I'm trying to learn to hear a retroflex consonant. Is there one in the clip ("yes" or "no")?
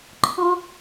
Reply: no